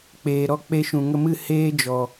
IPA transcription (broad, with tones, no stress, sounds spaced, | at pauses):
k͡p eː˨ ɾ ɔ˧ k͡p e˧ ʃ ũ˨ ŋ ə˧ m ɨ˦˨ h eː˦ d͡ʒ ɔ˨